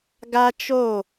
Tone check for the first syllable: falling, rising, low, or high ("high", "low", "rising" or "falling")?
high